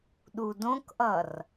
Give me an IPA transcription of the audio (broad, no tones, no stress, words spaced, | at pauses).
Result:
ɗudõkʔʌr